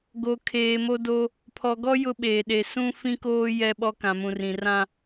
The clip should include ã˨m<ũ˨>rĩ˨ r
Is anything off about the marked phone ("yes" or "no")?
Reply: no